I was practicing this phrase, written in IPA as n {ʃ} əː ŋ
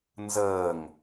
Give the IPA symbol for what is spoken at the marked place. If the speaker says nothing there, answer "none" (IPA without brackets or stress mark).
z